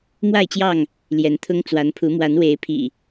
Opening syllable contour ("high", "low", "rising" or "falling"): falling